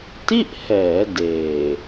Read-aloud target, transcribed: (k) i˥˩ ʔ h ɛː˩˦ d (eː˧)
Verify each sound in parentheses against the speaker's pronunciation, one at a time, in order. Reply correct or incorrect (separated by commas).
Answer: incorrect, incorrect